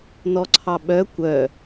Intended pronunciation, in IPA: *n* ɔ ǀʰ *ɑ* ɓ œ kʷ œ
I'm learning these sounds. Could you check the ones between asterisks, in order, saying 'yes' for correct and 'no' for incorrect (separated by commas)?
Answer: yes, yes